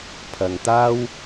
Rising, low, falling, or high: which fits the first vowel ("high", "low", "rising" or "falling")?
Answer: low